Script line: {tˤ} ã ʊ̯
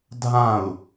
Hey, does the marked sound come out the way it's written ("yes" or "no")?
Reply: no